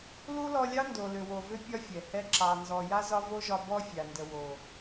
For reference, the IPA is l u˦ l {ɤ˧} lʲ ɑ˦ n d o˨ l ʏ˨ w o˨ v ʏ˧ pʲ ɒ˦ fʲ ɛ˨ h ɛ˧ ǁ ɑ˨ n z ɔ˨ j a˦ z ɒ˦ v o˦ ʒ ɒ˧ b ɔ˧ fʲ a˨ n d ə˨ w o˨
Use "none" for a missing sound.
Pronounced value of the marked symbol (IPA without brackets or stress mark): ɔ˧